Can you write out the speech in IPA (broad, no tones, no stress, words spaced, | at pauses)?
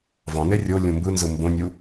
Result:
vɑ̃ne rʲo lʲũmbɯnzɯ mbõnʲu